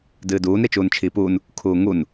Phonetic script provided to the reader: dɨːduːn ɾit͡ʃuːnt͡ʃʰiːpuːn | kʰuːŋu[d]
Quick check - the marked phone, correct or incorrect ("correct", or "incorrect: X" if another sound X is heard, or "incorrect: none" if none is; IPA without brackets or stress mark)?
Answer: incorrect: n